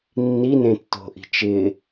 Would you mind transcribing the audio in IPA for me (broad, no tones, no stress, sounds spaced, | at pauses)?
nː i n ẽ tː o̤ ʔ i̤ t͡ʃ ɪ